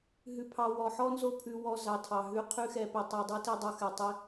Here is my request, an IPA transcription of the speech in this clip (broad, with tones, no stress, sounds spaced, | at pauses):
ɦ ʉ˧ pʰ ɑ˧ w ɔ˨ ħ ɔ˦ n z o˦ pʰ ʉ˧ w ɔ˧ z ɑ˨ tʰ ɑ˨ ɦ ʉ˧ qʰ ʉ˦ x ɛ˧ p i˨ tˤ i˨ dˤ o˦ t i˧ dˤ o˧ x ɛ˨ tˤ i˧